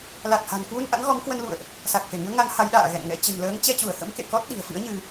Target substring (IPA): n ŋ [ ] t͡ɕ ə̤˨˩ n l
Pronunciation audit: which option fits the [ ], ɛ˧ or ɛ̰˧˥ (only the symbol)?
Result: ɛ̰˧˥